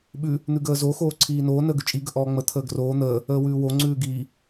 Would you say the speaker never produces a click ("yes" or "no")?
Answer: no